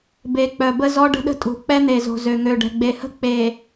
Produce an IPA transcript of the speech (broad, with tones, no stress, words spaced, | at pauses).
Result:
be˨k͡pœ˨bə˦ zɔ˦ɖə̤˦ɗə̤˦tʼṳ˨ k͡pɛ˦n̪e˨zo̤˨ zø˨ŋø˨ɖɛ̤˨ ɡ͡be˨hə̤˦˨ k͡pe˨